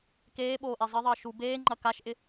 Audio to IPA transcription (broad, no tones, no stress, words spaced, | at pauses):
keːɓoːʔe zˤɪðˤəː ʃu beːŋ͡ǃɐ kaʃʔɪ